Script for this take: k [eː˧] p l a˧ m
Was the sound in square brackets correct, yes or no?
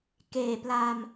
no